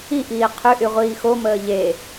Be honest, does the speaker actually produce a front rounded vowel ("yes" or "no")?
yes